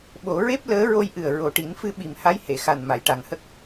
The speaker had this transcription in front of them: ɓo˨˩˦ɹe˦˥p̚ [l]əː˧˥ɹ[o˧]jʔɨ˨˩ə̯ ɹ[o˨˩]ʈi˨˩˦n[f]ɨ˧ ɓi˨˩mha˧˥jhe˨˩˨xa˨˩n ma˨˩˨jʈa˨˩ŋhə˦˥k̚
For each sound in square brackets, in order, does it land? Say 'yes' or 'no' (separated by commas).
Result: yes, yes, yes, yes